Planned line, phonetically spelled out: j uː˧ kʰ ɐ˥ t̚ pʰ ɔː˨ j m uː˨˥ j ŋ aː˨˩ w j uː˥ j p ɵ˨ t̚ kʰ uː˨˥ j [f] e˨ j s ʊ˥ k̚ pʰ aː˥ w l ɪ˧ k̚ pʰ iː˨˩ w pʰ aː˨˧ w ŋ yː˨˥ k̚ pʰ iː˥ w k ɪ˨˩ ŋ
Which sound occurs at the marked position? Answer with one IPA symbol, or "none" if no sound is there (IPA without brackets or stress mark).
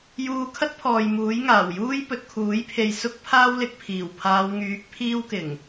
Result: pʰ